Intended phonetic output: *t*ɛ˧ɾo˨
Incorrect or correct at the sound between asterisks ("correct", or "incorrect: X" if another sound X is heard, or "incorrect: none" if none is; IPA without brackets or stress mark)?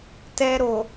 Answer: correct